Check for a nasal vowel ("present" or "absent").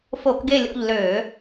absent